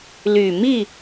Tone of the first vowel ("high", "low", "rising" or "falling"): low